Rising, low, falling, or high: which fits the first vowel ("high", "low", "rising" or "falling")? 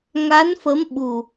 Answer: rising